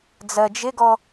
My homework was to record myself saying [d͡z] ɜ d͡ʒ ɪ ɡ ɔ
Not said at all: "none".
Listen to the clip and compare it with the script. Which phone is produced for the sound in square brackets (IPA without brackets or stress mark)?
d͡z